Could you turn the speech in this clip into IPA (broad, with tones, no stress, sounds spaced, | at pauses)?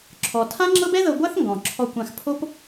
ǁʰ ɔ˩ tʰ ã˥ ŋ͡ǁ ɤ˥ b ɛ˥ ð ɤ˧ ɡʷ a˥ θ ŋ ɡ ɔ̃˩ ǁʰ ɔ˧ kʷ ã˧ x pʰ o˥ p